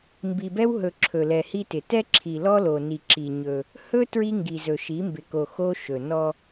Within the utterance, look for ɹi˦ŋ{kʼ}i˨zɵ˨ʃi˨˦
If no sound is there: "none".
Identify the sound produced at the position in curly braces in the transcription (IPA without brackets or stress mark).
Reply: ɡ